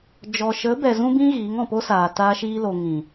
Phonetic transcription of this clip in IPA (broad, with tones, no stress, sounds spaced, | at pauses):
d͡ʒ ɔ˨ ʃ ə˨˦ b ɛ˨ z ũ˦ b ĩ˦ ɣ iː˨˦ ŋ ɔ̃˨ p o˦ s aː˨ t aː˧ ʃ iː˧ l o˨ ŋ ĩ˨